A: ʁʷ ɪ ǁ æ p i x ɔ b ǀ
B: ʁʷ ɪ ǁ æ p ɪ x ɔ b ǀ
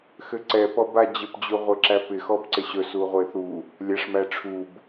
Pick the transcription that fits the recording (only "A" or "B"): B